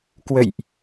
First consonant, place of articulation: velar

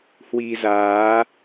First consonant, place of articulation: glottal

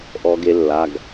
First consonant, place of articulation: glottal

